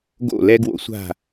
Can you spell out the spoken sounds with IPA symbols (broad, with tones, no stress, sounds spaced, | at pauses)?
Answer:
ɡ o̰˦˨ l ɛ˦ ɡ w o̰˦ sʷ a̤˦˨